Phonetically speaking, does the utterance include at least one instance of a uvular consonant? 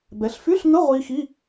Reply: yes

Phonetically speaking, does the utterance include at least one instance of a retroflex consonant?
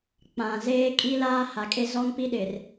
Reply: no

